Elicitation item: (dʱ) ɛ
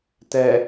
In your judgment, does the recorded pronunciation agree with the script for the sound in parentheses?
no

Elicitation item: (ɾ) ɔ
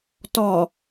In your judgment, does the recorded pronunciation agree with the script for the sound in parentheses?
no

